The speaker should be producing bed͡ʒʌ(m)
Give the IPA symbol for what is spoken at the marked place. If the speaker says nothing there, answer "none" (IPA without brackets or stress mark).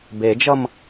m